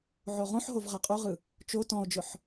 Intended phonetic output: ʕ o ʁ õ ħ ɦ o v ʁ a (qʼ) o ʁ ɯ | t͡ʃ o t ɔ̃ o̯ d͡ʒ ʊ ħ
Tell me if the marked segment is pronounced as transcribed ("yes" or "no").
yes